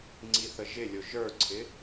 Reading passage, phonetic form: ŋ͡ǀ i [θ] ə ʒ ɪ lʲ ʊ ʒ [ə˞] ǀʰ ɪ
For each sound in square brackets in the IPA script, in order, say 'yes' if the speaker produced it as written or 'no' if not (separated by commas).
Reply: yes, yes